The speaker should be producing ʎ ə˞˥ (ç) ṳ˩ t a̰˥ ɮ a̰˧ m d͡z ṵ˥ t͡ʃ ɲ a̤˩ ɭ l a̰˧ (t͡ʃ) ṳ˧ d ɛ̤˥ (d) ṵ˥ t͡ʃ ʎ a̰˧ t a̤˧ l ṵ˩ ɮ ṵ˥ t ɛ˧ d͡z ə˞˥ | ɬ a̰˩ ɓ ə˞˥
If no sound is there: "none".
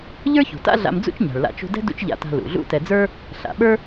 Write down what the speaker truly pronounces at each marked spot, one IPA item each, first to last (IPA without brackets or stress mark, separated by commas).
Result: ç, t͡ʃ, d